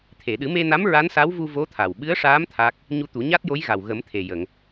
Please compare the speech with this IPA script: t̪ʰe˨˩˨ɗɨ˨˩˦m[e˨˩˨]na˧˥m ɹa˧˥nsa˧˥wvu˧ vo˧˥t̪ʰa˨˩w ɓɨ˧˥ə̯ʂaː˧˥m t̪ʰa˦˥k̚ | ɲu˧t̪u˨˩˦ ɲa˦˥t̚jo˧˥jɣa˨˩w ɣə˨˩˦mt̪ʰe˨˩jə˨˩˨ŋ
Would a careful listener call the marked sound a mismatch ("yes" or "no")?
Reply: yes